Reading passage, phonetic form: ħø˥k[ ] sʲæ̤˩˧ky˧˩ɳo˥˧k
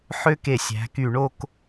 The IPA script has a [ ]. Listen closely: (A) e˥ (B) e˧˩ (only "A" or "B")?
B